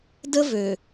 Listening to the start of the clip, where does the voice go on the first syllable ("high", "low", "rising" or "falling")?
high